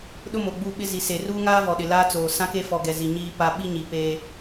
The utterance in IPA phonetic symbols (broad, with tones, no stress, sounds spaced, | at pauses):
ɗ ʊ˦ m o˨ ɡ͡b u˦˨ ɓ ɪ˦ z i˨ s e˨ r uː˦ ŋ aː˦ v ɔ˨ ɗ ɪ˨ l aː˦ t͡s oː˨ s ã˦ k e˦ f ɔ˨ ɡ ɛ˨ z i˨ ɲ iː˦ p a˦ ɓ i˦ ɲ i˨ p e˦